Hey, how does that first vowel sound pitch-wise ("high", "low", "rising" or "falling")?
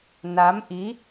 rising